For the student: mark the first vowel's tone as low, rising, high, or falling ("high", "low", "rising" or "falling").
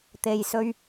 low